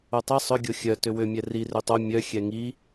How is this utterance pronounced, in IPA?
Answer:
o tˤ i sˤ ʏ ɡʲ o xʲ œ t ʏ w ʏ mʲ ɛ r i r ʏ tˤ o mʲ œ xʲ ɛ ŋ i

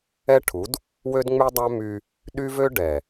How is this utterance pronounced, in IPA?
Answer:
ɛ˦ ʈʰ u˨˦ d | w ø˦ d ŋ͡m y˦ dˤ æ˦ m y˦ | ɗ y˦ v ø˦ ɖ ɛ˨

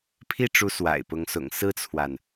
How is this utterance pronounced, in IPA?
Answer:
pʰ i˥˩ ʈ͡ʂ u˧˥ s w a̰˨˩ ɪ̯ p ʊ˧˥ ŋ s ʊ̰˨˩ ŋ s ɹ̩˥ t͡sʰ w a˨ n

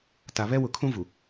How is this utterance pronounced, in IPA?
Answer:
t a˨ β ɛ˦ w ʊ˨ kʰ ũ˦ v u˨

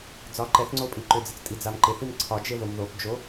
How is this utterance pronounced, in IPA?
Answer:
d͡z ɒ ǃ ɛ θ ŋ͡ǀ o pʼ i ǃ ʏ d͡z ɪ t͡s tʼ i d͡z a m ǃ ɪ θ i m ǀʰ ɒ d͡ʒ e ð o m ð o p d͡ʒ o

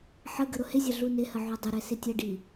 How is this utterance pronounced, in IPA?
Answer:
ħ ə ɡ ə ɾ ʊ h ɪ zʲ ɐ ɮ u n ɪ h ə ʕ o dˤ ɪ ɾ ɛ s ɪ tʲ ə ɖ i

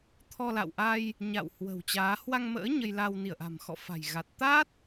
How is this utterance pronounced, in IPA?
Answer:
t̪ʰ ɔ˧ l a̰˧˨ w ʔ a˧ j | ɲ a̰˧˨ w h w ə̤˨˩ w t͡ɕ aː˨˦ h w a˧ ŋ m ə̰ː˧˥ ɲ ə˧ j l a˧ w n i˧˩ ə̯ ʔ a̤˨˩ m x ɔ̰˧˨ f a̤˨˩ j ɣ a˨˩ t̚ t̪ a˦˥ t̚

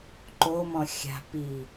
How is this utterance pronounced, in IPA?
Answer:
ǃ o m ɔ̃ xʲ a̤ p i

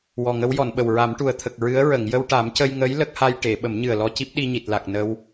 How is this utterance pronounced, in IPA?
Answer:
w ɔ˨˩ ŋ ə˧˥ w j ɔ˨˩˨ n ɓ ə˨˩ w ɹ a˨˩˦ m ʈ u˨˩ ə̯ t̪ʰ ə˨˩ k̚ ɹ ɨ˧˥ ə̯ ɹ ə˨˩˨ ŋ j ə˧ w ʈ a˨˩˦ m c ə˧ j ŋ ə˧˥ j l ə˦˥ k̚ h a˧ j ʈ e˨˩˨ ɓ ə˨˩˦ m ɲ ɨ˨˩ ə̯ l ɔ˧ c i˦˥ p̚ ɗ i˧ ɲ i˨˩ t̚ l a˨˩ k̚ n ə˧ w

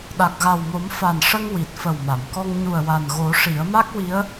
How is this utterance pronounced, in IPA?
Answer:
ɗ a˨˩ k̚ ɣ a˨˩ w m o˨˩˦ m f a˨˩ n ʂ ə˧ ŋ w i˨˩ t̚ f ə˨˩ w m a˨˩˨ m k ɔ˧ ŋ ɲ u˨˩ ə̯ w a˨˩ n ɣ o˨˩˦ ʂ i˨˩˦ ə̯ m a˦˥ k̚ w i˧˥ ə̯

